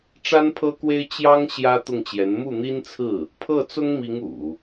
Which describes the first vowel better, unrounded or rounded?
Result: unrounded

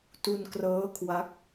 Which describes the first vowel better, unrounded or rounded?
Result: rounded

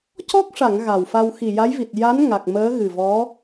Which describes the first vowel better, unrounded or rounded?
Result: rounded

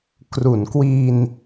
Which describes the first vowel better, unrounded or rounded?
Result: rounded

